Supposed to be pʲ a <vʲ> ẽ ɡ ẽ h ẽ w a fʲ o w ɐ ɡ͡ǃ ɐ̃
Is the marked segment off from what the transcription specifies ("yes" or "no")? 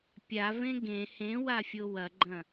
yes